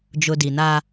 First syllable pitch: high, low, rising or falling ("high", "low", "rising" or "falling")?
low